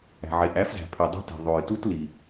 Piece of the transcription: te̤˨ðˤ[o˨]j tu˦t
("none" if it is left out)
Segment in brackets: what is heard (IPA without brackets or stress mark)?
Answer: o˨